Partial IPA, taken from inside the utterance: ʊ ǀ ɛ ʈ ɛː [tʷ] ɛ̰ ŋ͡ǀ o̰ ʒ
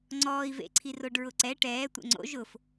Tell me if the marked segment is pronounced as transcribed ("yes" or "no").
yes